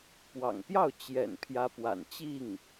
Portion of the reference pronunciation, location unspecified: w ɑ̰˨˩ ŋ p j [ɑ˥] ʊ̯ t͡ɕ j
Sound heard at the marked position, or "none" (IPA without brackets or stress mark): ɑ˥˩